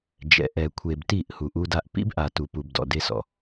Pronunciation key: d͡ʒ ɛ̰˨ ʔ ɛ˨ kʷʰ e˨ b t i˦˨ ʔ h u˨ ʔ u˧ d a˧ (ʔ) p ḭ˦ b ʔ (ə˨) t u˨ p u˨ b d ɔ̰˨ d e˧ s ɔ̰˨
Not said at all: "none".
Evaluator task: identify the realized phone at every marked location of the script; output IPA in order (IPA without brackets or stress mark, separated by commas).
ʔ, a˨